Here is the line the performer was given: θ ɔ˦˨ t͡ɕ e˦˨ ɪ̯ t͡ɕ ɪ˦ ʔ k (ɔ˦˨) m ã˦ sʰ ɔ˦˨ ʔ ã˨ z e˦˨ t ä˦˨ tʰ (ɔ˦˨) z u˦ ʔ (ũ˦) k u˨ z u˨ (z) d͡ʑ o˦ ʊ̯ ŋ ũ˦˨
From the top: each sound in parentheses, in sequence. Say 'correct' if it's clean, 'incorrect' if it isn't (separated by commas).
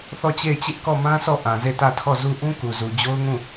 correct, correct, correct, incorrect